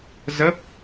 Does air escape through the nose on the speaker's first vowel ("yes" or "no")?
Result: no